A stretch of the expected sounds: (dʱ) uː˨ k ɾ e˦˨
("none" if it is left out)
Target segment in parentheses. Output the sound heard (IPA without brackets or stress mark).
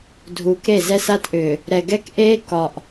dʱ